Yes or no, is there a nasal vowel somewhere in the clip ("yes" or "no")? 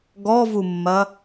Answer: no